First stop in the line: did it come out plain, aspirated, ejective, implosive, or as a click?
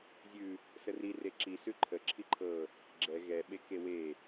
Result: click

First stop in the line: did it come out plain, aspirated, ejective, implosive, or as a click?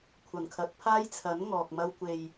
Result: aspirated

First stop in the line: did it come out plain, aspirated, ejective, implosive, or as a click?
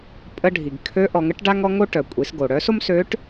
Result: ejective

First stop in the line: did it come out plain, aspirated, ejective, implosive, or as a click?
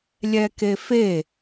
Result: plain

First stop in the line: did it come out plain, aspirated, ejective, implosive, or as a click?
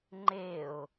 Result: click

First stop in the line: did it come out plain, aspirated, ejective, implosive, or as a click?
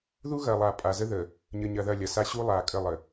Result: ejective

